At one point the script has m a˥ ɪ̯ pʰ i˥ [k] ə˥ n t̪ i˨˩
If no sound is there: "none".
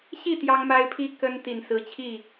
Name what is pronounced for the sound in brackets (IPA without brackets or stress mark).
k